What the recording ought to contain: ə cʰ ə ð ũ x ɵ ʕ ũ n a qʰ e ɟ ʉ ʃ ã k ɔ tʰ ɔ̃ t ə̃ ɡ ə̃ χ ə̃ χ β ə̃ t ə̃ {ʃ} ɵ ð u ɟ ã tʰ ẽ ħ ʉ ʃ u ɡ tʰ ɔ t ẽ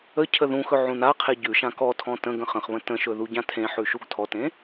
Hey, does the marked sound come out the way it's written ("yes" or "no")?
yes